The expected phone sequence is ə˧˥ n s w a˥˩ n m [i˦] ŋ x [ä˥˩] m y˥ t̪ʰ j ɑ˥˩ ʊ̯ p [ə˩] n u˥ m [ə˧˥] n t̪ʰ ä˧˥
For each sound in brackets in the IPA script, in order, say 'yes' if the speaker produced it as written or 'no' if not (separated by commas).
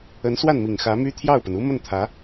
no, no, yes, no